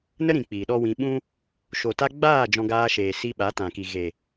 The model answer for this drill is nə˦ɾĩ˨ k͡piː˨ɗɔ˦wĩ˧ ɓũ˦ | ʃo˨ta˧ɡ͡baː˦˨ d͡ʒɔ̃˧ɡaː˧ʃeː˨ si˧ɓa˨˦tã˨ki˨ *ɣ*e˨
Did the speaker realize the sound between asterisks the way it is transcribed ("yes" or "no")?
yes